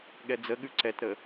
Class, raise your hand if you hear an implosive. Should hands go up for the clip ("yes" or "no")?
yes